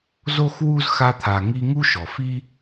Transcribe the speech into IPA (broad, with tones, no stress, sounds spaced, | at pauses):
z o˥ x w u˥ z x a˦ t̪ʰ a˨ ŋ i˦ ŋ u˥ ʃ ɔ˩ f i˥